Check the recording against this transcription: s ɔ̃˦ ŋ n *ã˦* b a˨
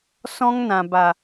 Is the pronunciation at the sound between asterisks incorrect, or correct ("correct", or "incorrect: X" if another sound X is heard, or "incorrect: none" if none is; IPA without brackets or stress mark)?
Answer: incorrect: ã˨